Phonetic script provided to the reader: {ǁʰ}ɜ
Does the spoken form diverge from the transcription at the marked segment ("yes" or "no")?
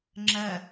yes